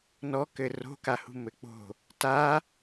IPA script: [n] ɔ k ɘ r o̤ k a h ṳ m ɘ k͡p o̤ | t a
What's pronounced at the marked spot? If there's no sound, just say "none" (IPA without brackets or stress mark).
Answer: n